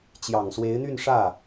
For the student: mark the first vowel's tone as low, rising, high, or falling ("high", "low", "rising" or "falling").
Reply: low